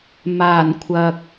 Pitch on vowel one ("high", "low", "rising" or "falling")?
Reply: low